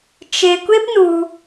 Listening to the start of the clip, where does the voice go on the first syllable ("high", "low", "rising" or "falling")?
high